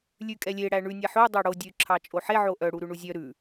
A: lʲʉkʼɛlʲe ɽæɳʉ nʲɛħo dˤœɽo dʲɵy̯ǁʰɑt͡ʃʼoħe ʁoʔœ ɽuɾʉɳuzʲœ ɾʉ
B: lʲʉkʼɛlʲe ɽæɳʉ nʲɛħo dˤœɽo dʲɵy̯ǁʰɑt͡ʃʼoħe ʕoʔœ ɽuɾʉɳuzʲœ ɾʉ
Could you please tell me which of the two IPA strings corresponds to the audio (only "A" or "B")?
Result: B